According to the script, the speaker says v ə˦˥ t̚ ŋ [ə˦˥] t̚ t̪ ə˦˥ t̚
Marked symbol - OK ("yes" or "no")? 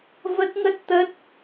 yes